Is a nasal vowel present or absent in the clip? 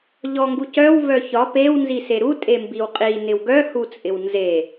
absent